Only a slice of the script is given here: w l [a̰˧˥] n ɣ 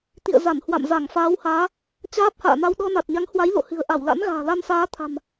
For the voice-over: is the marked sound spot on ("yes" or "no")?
yes